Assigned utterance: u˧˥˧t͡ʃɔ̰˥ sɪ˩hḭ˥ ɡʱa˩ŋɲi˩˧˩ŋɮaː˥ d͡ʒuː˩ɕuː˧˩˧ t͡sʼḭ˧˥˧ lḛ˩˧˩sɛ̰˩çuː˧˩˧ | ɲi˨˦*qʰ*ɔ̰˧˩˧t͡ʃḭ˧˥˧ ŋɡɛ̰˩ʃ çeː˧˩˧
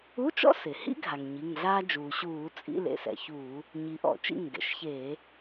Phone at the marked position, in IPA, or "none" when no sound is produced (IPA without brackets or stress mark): ʔ